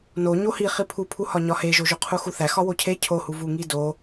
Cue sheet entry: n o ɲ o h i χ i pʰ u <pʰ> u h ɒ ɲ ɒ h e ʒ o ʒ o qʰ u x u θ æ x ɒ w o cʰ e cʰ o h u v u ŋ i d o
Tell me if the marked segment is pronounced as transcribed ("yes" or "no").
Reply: yes